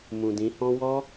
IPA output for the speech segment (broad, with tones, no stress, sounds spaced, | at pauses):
m ũ˨ d ĩ˨˦ h ɔ̃˦ w ɔ˦